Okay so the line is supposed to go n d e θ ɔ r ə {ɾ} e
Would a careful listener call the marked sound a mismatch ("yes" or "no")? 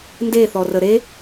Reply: no